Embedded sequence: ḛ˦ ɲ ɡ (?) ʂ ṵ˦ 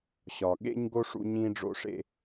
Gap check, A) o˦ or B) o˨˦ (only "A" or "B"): A